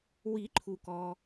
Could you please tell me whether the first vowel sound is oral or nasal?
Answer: oral